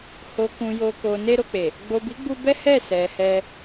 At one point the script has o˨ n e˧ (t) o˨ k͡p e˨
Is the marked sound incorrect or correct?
incorrect